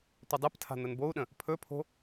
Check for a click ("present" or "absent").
absent